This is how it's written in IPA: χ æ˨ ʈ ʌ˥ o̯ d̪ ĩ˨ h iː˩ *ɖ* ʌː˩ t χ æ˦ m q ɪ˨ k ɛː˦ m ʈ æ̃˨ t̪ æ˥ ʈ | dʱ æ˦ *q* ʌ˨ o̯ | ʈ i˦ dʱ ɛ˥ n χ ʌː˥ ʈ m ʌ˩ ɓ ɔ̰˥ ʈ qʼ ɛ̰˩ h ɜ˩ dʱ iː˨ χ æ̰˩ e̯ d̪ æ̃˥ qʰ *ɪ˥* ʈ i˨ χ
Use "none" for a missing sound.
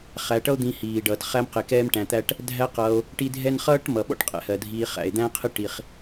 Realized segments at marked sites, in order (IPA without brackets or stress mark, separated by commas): ɖ, q, ɪ˥